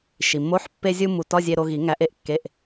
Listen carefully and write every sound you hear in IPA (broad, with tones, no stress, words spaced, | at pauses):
ʃi˩mːo˧˥˧ħ pːe˧zʲu˧ mu˧ tɒ˧˥˧zʲe˧ ɾo˧ ɣi˨˩˦ ŋæ˨˩˦ʔe˧ʔ kːe˧˥˧ʔ